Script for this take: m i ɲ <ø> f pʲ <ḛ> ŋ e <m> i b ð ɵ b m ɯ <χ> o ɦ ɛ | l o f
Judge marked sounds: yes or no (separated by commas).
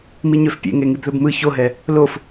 yes, yes, no, no